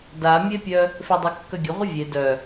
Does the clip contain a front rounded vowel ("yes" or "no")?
yes